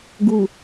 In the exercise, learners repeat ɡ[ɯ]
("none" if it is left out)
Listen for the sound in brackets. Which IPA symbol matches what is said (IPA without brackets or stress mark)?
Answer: u